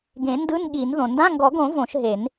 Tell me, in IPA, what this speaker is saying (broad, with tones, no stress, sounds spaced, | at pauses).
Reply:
ɡ ẽ˨˩˦ n d ɯ˧˥˧ n ɠ i˨˩˦ n ð õ˩ n d ã˧˥˧ ŋ ɡ ɔ˨˩˦ ɡ õ˨˩˦ v õ˨˩˦ ʃ ɦ e˨˩˦ n